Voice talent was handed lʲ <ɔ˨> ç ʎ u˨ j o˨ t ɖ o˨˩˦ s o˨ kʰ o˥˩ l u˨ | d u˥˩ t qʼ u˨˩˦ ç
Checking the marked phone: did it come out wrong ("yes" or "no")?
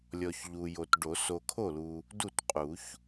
no